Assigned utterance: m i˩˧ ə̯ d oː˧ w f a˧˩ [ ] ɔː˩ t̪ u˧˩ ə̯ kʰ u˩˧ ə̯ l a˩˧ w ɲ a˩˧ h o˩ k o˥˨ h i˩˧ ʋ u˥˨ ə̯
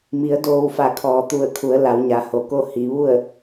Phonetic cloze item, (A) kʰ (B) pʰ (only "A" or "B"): A